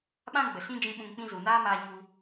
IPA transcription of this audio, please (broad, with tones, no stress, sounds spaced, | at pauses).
ɓ ã˦ ɡ͡b ə˨ s ĩ˦ d͡ʒ ĩ˧ ɓ ũ˧ ŋ k͡p ĩ˦ z u˨ n aː˦ m aː˧ ɲ u˧